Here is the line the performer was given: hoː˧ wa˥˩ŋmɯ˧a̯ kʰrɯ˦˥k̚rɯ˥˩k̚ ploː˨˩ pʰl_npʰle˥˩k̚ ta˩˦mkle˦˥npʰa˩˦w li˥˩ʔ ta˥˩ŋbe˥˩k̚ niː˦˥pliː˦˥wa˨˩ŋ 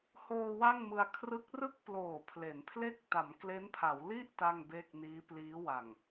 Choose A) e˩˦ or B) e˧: A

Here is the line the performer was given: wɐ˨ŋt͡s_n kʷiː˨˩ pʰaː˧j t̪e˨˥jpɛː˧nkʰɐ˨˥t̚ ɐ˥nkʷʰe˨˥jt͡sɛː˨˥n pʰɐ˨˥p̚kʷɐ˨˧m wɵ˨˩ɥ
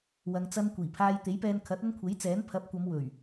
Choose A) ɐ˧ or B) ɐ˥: A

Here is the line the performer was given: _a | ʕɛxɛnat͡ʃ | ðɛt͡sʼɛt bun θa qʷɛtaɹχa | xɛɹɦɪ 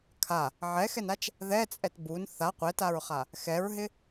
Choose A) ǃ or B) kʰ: B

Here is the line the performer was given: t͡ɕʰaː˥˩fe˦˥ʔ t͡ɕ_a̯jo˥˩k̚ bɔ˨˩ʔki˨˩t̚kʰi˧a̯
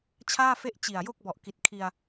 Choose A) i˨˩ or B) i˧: A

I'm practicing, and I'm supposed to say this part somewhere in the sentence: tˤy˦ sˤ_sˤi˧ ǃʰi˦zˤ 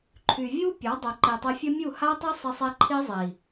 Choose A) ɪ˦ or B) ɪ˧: B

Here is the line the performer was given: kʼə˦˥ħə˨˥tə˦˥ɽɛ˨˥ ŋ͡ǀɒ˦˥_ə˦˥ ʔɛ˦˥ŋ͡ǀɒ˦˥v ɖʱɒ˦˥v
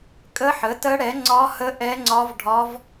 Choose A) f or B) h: B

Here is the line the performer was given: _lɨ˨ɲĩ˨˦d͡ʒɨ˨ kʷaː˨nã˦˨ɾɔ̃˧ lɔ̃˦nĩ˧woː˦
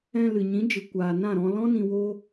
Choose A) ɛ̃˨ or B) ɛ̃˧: B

